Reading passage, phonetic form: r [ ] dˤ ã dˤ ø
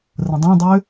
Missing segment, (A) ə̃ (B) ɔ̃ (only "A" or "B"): A